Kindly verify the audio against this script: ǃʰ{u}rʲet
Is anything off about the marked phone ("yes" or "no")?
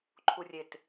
no